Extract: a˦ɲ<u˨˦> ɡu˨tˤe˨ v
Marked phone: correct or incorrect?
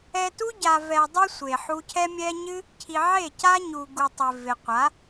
incorrect: u˨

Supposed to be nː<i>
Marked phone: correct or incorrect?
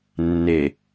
incorrect: e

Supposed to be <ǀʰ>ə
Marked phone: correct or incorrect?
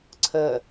correct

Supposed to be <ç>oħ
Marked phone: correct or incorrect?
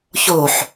correct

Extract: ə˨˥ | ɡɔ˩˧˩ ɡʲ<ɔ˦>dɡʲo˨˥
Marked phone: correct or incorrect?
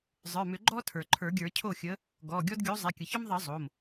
correct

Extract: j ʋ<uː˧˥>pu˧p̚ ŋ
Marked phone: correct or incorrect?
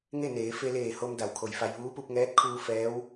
correct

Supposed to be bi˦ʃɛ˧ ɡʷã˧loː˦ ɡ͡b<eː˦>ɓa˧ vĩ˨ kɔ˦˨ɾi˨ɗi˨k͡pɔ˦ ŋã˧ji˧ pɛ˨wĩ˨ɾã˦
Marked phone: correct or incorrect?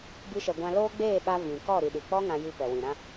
incorrect: eː˦˨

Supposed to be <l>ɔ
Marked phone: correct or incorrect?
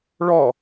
incorrect: ɭ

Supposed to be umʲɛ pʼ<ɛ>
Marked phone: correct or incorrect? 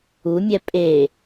incorrect: e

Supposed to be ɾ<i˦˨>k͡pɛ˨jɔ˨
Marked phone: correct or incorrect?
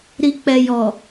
incorrect: i˨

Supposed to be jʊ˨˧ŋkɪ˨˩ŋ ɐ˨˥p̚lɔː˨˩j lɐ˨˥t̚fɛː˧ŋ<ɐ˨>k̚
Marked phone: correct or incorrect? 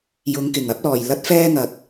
correct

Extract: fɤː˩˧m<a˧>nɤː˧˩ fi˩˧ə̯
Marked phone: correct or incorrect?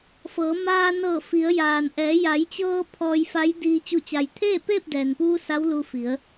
incorrect: aː˧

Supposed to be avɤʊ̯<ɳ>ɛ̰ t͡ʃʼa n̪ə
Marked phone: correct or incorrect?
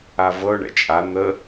correct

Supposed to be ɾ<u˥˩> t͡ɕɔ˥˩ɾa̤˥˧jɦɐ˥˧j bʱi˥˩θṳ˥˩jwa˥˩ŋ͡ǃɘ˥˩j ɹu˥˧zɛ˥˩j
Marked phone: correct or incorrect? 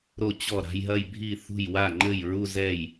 incorrect: o˥˩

